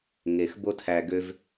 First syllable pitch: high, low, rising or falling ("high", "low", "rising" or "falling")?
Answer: low